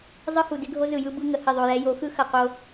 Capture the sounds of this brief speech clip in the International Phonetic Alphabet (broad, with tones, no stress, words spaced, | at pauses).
zˤɯ˦hu˨dɪ˦ɡʱo˦ zɯ˨jɯ˦ bɯ˦ ŋə˨hɪ˦˨ðˤo˨jɛ˦ jo˨˦xɯ˦ xɐ˨qo˦